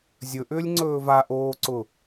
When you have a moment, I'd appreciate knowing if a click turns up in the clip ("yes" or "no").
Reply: yes